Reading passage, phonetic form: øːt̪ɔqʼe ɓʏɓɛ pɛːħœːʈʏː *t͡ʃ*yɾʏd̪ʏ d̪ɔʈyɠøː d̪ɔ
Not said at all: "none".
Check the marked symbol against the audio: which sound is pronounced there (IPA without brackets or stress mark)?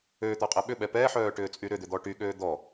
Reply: t͡sʼ